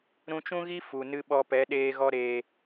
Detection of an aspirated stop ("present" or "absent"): absent